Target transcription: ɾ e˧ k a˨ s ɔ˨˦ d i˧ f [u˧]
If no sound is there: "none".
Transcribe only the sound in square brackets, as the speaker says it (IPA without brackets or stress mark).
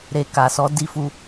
u˧